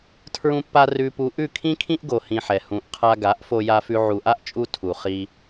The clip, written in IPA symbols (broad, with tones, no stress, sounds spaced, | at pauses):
tʰ ɹ ũ˧ pː a˧ r ʉ˧ p u˧ ʔ ʉ˦˨ kʰ ĩ˦ kʰ ĩ˦ ʔ ɡ o˧ h ĩ˧ ħ ɛ˨ h ũ˨ ʔ qʰ a˧ ɡ a˨˦ ʔ f o˧ j a˧ f ʉ˧ ʕ u˨ ʔ a˦ ʔ t͡ʃʼ u˧ tʰ u˨ χ i˧